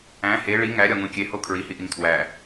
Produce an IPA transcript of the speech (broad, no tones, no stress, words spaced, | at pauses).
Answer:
æ̃ he ɭi ŋæɾʲɒŋũ kʲeho kʰɹihiʔiŋ tʰwæ